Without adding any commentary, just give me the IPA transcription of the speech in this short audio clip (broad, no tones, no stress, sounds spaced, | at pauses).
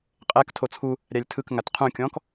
qʼ ɛ k tʰ o t͡sʰ u | ɾʲ a lʲ tʰ ɯ k ŋ a t qʰ ũ kʲ ɔ̃ k